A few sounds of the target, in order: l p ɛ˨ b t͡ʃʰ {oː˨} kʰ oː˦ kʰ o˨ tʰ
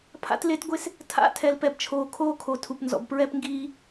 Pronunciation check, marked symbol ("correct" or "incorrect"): correct